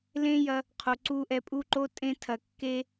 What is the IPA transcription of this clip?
l ẽ˦ j ɐ˧ | qʰ o˨ ǀ u˧ ʔ ɛ˧ pʼ u˦ ǃ o˦ tʼ ẽ˧ tʰ ɐ˨ kː e˧

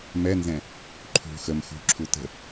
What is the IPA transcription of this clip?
m ɛ n z ɛ̃ | ǃʰ ṳ x ə m x ṳ ǁʰ u t ə̤

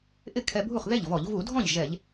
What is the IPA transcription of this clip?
ʔ ɪ˥˩ kʰ ɛ˧ bʱ u˥˩ χ ð e˥˩ ʎ v ɔ˧˩˧ ʎ v u˧˩˧ dʱ ɔ̃˥˩ ʎ ʒ ɛ˧˩˧ ʎ

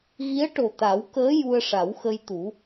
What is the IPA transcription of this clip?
ɣ i˧˥ ə̯ ʈ o˨˩ t̪ a˨˩˦ w k əː˧˥ j u˧ ə̯ ʂ a˨˩˦ w x ə˧ j t̪ u˨˩˦

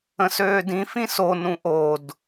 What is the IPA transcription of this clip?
ə̃ s øː d ĩ f ĩ s o n ũ ʔ o d

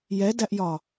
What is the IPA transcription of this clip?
j ɛ d æ ʔ j ɒ

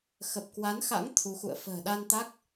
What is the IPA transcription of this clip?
x ə˨˩ p̚ k w a˨˦ n x a̰˧˥ ŋ t̪ʰ u˨˦ x ṵ˧˨ ə̯ f ə̤ː˨˩ ɗ a˧ n t̪ a˦˥ k̚

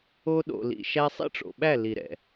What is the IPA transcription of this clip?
o˧ ɗ o̰˨ l ḭ˨ ʃ æ˧ sˤ ḭ˦ ʈ͡ʂ o̰˨ ɓ æ˦˨ l i˨ ɾ ɛ̰˨

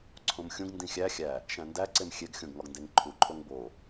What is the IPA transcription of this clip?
ǀʰ õ m xʲ ũ ɡ n d ĩ xʲ æ xʲ æ | ʃ æ̃ n d æ ǀ e m xʲ e ɡ xʲ õ ɡ ŋ ɒ ɡ n d e ŋ ǃʰ u ǃʰ o ŋ b o

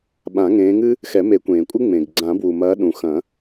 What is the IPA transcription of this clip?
ɓ ã˨˩˦ ŋ ẽː˨˦ ŋ ɨ˥ | x ɛ˨˩˦ m e˨˩˦ kʷ ẽː˩ kʷʼ ɨ˥ ŋ͡m ẽ˩ ɡ ɡ͡ǀ ã˨˩˦ b w u˩ m ɐː˨˦ ɗ ũ˩ x ɐ̃˨˩˦

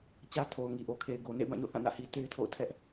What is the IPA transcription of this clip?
t͡ɕ ä˦ tʰ o˨ ʊ̯ ŋ i˨ ʔ o˨ kʰ e˨ ɪ̯ ɡ o˨ n ḛ˦˨ ɪ̯ b ã˦˨ ɲ o̰˦˨ θ ã˦˨ n ä̰˦˨ h i˨ t e˦ ɪ̯ tʰ o̰˦˨ ʊ̯ tʰ ɛ˦ ʔ

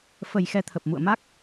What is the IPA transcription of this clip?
f ə˨˩ j x ɛ˧ t̪ʰ ə˨˩ p̚ m ṵ˧˨ ə̯ m a˦˥ k̚

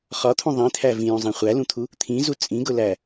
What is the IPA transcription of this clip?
χ ɒ t̪ʰ ũ ðˤ ĩ t̪ʰ æ v ĩ j ũ zˤ ĩ χʷ æ l ũ t̪ʰ u | t̪ʰ ĩ z u t͡sʼ ĩ ɡ ʊ l æ

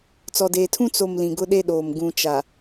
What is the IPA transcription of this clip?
t͡s ɔ˨ d eː˨ tʰ ũ˦ t͡s o˨ m l ĩ˨ ɡ ʊ˦ ɗ e˦ ɗ oː˨ m ɡ ũ˨ t͡ʃ a˨

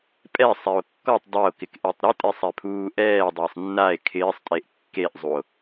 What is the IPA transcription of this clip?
pʼ ɛ sˤ ɛ o̯ kː ɔ tˤ dˤ ɛ o̯ k ɪ k ʔ e tˤ ɾ ɪ tʼ e sˤ ɛ pʰ uː ʔ ɛː dˤ ɪː sˤ nː a e̯ kʰ ɪː sˤ tʼ e ʔ kː e ʔ zˤ u o̯

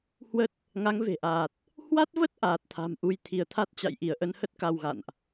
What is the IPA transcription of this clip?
h w ə˦˥ t̚ | ŋ a˨˦ ŋ v e̤˨˩ ʔ aː˨˩ t̚ | h w a˦˥ t̚ v ə˦˥ t̚ ʔ aː˨˩ t̚ t̪ʰ a̤˨˩ m ʔ u˨˦ j t̪ʰ i˧˩ ə̯ t̪ʰ a˦˥ t̚ t͡ɕ a̰˧˨ j ʔ i˧˩ ə̯ ʔ ə˧ n h ə˦˥ t̚ k a˧ w ɣ a̰˧˨ n ʔ

